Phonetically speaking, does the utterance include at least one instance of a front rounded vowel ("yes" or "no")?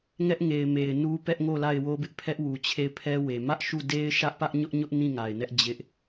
no